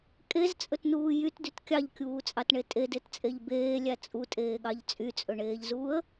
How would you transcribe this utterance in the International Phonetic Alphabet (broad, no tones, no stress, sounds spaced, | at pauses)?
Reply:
kʼ e z t͡sʼ ɵ t n uː j y t d y t kʲ ɑ ʎ kʲ uː t͡sʼ ɑ t ɳ e tʼ e d e t t͡sʼ e ʎ b eː lʲ æ t͡sʼ u tʼ eː ɠ ɑ ʎ t͡sʼ y t͡sʼ ɵ ɳ eː ʎ z uː ə̯